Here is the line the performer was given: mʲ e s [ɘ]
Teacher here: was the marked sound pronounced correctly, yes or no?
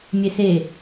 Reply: no